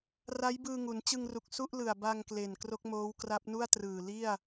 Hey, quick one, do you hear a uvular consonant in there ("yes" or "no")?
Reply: no